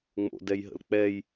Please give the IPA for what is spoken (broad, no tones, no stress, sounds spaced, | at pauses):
ŋ͡m o̰ d ɛ j ɦ ə̰ l k͡p ɛ j